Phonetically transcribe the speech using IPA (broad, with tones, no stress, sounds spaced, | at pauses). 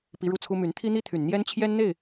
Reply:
p i˧˥ ɻ u˥˩ t͡sʰ u˥ m y˧˥ n t̪ʰ i˥ n̪ i˥ t̪ʰ y˨˩ n n̪ j ɛ˥ n t͡ɕʰ j ɛ˥ n n̪ e˥˩ ɪ̯